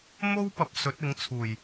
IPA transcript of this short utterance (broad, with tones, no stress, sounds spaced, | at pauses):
m o˥ w p ɐ˨ p̚ s ɵ˨˥ t̚ ɪ˨˥ ŋ t͡sʰ uː˨˩ j